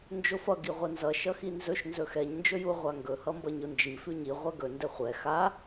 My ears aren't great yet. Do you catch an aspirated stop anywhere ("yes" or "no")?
no